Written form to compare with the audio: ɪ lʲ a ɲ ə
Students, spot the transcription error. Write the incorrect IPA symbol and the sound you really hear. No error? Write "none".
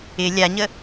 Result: none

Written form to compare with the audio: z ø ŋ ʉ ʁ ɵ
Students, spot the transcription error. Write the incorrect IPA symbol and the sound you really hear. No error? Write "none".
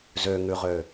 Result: ɵ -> ø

